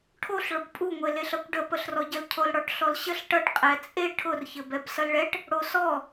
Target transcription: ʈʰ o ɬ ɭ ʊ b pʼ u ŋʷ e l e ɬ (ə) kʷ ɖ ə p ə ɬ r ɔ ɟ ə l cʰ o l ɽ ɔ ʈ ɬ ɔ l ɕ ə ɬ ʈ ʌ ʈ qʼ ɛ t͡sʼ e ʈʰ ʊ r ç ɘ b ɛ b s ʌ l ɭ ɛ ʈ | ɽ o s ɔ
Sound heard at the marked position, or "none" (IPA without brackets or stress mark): ʌ